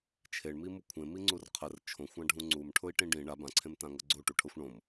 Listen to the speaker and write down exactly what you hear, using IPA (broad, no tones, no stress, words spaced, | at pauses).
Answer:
t͡ʃʰeɳmimu kʷʰẽmiŋ͡ǀur qʰər t͡ʃʰõxʷãɖʱũ ŋ͡ǀumʈʰʊi̯ʈĩ ɖĩ ɳa bãǀʰẽmtãŋɤ ɡ͡ǀoʈuʈʰɤxʷ ɳõm